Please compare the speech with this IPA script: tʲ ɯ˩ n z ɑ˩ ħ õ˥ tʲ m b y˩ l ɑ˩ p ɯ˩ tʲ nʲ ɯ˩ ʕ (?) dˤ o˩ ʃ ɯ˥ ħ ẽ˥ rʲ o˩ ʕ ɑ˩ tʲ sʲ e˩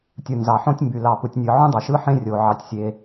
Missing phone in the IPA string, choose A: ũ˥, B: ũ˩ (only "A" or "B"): A